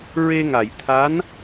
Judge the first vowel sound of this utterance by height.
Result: mid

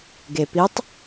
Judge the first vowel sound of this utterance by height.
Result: mid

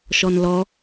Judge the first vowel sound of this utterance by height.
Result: mid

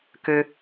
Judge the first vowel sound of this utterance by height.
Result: mid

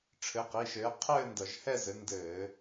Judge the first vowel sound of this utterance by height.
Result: mid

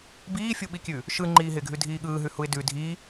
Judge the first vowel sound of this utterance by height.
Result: high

